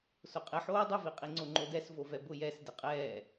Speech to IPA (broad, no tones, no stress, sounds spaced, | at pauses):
s ʊ qʼ ɪ ħ oː dˤ ʊ v i qʼ i ŋ͡ǀ o ŋ͡ǃ o d ɛ s v o v ɛ b ʊ j ɛ s d ɪ qʼ ɛː